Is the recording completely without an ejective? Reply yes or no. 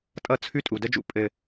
no